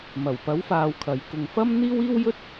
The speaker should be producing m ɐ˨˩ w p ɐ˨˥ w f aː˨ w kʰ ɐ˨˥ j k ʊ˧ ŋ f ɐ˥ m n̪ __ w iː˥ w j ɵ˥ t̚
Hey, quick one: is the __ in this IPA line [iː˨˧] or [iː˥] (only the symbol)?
iː˥